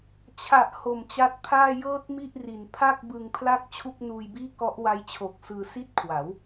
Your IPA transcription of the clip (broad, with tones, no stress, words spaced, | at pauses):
t͡ɕʰa˨˩ʔ ho˨˩mt͡ɕa˦˥t̚pʰaː˥˩ jɤː˥˩t̚mi˥˩ʔri˨˩n pʰa˥˩k̚ bɯ˧ŋpʰla˥˩k̚ t͡ɕʰu˥˩k̚nuː˧jbiː˥˩ kɔ˦˥ʔwa˦˥jt͡ɕʰo˨˩k̚ sɯː˧si˥˩t̚kʰwa˩˦w